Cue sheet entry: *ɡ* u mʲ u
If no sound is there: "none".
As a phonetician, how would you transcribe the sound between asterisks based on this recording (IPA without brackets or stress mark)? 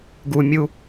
ɡ